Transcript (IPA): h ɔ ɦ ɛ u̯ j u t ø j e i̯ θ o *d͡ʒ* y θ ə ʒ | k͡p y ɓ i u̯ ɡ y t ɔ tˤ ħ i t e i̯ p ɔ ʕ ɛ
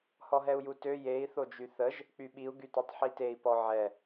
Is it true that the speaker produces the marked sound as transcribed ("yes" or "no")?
yes